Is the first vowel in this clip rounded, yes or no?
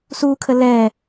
yes